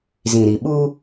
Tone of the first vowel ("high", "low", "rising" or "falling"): low